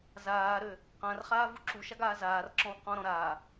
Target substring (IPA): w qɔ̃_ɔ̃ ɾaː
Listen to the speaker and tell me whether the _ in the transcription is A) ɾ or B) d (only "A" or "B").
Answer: A